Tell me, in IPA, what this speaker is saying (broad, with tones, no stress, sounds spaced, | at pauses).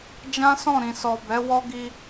d͡ʒ ã˦ s ɔ̃˦˨ ɾ ĩ˨ s ɔ˨ b ɛ˨˦ w ɔ˦ ɡ i˧